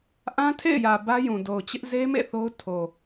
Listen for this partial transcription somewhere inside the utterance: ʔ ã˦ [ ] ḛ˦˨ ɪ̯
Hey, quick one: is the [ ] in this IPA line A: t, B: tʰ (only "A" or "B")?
B